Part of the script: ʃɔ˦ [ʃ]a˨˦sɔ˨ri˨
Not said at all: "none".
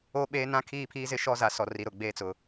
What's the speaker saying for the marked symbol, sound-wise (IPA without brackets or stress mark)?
z